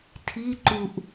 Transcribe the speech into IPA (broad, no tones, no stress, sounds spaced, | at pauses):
tʰ i ǃ u ʔ